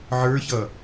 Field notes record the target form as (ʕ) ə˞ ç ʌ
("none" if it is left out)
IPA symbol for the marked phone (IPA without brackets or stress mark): ʕ